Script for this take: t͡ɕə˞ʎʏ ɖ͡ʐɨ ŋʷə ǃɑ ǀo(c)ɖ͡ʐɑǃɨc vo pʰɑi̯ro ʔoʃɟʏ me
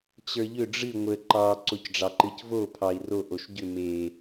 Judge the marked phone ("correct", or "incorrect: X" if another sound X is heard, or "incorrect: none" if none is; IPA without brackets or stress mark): correct